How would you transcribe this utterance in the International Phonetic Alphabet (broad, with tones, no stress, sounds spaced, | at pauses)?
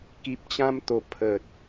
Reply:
k i˨ p̚ t͡ɕ ã˧ m t̪ o˨˩ pʰ ə˨ t̚